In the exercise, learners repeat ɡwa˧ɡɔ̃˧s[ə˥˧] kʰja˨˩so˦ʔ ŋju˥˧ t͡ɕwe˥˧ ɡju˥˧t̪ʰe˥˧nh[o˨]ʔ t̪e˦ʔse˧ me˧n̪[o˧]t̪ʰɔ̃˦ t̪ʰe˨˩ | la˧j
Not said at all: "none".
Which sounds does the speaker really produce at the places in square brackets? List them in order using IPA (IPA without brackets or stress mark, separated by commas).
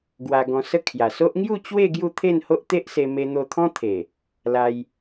ə˥˧, o˦, o˧